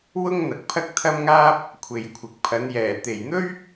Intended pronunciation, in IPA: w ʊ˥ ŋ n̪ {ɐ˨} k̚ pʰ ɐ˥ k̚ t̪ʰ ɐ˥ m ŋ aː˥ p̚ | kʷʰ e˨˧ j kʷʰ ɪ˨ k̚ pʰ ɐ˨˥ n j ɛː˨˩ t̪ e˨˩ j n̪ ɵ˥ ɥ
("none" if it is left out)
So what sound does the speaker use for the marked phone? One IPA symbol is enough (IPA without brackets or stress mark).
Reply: ɐ˨